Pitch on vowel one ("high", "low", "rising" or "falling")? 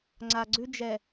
low